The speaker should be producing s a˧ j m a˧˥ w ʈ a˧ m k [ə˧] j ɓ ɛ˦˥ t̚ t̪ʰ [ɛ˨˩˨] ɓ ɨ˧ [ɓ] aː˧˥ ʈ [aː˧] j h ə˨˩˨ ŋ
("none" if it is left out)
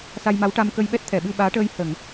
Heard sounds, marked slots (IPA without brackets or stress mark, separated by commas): ə˧, ɛ˨˩˨, ɓ, əː˧